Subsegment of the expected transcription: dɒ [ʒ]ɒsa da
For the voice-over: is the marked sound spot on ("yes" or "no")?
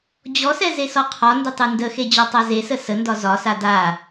no